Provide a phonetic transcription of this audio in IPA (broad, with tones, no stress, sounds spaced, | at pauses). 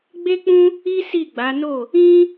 ɡ͡b e˦ k͡p ũ˦ | i˦ s i˦˨ ɡ͡b a˨˦ n o˦˨ | ĩ˦